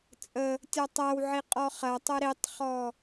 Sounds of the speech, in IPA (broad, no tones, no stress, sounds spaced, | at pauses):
t͡sʼ ə | tʲ ɔ tˤ æ w ʕ i qʼ ɔ χ ɐ tˤ ə ɾ i tˤ χ ɔ